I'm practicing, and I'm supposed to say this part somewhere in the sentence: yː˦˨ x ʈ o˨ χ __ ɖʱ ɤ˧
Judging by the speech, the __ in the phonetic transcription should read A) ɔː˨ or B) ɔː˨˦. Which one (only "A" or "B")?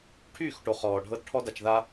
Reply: A